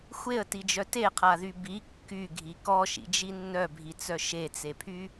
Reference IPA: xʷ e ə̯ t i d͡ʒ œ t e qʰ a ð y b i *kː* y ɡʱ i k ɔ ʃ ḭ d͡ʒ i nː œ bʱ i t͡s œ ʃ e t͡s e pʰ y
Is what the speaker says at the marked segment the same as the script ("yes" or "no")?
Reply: yes